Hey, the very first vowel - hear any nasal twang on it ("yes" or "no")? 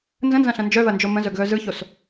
yes